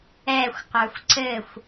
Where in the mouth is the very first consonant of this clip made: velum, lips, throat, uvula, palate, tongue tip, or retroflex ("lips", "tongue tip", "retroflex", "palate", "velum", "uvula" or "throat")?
velum